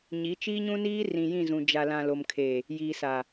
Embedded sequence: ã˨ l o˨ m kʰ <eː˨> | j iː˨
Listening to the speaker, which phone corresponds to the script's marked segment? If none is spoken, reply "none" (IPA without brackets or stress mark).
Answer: eː˨